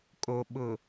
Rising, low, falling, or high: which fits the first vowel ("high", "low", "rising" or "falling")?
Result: low